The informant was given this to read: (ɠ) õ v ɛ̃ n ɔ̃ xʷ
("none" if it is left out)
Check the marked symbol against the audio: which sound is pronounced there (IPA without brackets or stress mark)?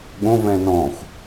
ɠ